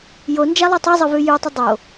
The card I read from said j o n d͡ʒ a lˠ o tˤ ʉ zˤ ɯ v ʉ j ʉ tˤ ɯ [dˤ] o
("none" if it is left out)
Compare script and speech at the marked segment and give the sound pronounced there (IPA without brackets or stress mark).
dˤ